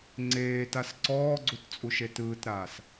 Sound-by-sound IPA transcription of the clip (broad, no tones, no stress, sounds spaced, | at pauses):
ŋ͡ǀ eː t a s ǀ ɔː ɡ͡ǀ u t t͡sʼ u ʃ e t ɯː t ɾ aː s